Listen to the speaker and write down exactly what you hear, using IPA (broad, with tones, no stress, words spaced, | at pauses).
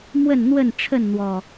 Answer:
mwə˥˨nn̪wə˥˨nʈ͡ʂʰə˥˨n n̪wɔ˨˩